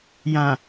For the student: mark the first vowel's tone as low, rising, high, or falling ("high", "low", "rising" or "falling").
low